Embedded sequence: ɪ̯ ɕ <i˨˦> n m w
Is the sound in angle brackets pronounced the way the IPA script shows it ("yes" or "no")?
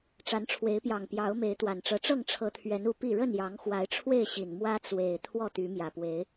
no